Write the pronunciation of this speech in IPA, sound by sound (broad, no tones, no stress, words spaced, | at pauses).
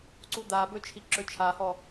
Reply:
ǀud̪abɵ t͡ʃʰiǁɵt͡ʃʰahɔ